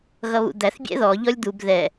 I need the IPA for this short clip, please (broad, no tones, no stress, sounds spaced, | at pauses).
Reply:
ɣ ʌ β ṵ d̪ æ θ bʲ ɛ̰ ð ɔ ʎ ɔ lʲ d̪ u b ð ɛ